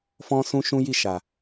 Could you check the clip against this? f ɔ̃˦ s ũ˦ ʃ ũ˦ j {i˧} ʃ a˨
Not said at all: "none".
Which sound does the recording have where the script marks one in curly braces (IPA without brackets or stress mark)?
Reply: i˦˨